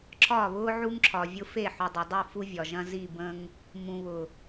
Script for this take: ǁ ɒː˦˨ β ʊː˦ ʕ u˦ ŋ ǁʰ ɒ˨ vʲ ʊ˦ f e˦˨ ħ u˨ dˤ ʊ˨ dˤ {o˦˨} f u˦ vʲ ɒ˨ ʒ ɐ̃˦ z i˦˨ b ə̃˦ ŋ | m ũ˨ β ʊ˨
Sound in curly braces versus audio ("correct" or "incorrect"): incorrect